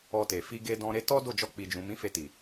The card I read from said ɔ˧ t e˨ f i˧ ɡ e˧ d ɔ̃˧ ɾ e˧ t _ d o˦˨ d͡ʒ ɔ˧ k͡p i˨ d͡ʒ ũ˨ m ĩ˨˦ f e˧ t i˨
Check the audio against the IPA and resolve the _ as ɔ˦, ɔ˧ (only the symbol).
ɔ˦